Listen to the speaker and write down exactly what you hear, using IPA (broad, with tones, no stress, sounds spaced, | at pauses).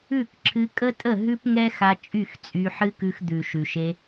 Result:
ʉ˦˨ k ǁʰ ɨ˧ kʼ ə˦ tʼ ə˦˨ ɦ ʉ˦ p ŋ ɛ˦ x a˧ t͡ʃʼ y˦˨ x t͡sʼ y˧ ħ ɨ˦ k ʉ˧ x d̪ ʉ˨ ʃ ʉ˨ ʃ e˧